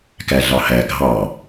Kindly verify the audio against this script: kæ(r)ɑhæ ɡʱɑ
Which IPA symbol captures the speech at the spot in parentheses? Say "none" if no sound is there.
ɮ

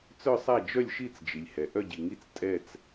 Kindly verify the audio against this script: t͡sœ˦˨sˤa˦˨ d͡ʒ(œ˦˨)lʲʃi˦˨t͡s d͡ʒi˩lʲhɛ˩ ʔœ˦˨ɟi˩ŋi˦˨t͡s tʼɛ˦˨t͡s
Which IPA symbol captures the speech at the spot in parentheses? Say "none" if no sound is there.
œ˦˨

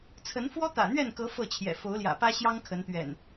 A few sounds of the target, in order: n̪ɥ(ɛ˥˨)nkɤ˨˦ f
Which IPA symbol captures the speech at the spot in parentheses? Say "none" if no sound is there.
ɛ˥˨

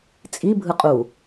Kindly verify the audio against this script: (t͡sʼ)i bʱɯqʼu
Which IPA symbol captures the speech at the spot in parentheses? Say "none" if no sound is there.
t͡sʼ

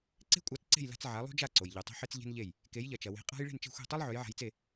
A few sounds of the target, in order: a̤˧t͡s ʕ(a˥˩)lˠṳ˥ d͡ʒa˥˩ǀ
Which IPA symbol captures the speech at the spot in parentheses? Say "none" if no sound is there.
a˩˥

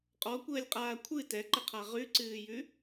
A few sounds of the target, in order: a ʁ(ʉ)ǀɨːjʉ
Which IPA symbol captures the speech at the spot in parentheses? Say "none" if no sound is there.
ʉ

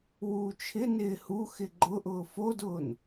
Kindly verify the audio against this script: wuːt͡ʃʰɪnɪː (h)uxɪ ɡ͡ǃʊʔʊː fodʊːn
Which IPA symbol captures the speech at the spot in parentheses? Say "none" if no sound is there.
h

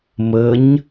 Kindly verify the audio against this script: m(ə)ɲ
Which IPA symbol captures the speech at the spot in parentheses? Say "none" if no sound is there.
ə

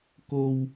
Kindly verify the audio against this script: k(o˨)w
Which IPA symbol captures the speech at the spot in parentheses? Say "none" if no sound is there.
o˨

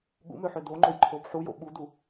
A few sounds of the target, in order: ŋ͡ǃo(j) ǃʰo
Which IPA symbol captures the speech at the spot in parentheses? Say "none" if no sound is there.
j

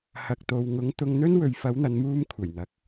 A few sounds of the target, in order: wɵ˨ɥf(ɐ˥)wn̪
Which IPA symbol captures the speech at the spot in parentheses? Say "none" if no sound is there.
ɐ˨˥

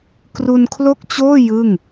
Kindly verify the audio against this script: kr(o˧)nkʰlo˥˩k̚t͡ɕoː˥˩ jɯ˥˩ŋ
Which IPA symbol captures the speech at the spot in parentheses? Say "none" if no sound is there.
u˧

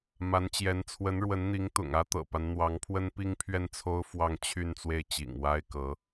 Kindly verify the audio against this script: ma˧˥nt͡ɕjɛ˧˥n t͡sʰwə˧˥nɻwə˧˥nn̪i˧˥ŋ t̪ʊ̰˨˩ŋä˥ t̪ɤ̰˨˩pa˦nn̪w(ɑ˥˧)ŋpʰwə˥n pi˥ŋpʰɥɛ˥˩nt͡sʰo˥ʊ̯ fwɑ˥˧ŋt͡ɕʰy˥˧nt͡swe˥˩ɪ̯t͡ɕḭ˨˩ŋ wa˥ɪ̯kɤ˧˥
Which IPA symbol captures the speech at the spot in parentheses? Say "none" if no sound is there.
ɑ˧˥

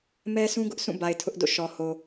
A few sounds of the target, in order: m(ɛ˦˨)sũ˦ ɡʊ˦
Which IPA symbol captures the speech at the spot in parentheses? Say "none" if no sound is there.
ɛ˦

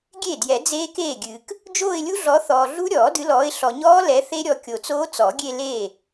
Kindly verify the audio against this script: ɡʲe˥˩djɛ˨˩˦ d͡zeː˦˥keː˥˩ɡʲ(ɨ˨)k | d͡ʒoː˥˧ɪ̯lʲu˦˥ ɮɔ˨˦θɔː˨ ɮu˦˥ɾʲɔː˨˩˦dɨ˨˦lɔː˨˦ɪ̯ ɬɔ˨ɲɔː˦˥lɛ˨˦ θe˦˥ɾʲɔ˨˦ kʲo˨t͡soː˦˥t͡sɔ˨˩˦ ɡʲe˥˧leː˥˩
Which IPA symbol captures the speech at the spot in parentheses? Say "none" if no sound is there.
ɨ˨˩˦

